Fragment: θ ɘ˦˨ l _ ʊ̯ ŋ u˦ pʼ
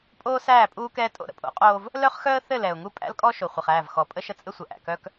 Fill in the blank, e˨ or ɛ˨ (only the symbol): ɛ˨